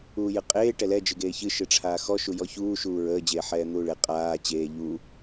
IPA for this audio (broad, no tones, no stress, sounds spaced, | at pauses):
uː j ɨ qʼ eː ʈ ɛ l ɛ d͡ʒ ɨ ɡ eː ç ɨ ʃ ɨ ʈ͡ʂʰ aː x ɔ ʃ u j ɔ ç uː ʃ uː ɹ əː d͡ʑ eː ħ ɛː n̪ uː ɭ e qʼ aː t͡ɕ eː ʎ uː